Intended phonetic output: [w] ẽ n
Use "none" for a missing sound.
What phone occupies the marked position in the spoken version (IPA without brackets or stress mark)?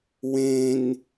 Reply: w